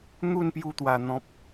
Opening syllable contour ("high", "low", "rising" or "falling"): falling